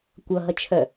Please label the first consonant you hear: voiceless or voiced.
voiceless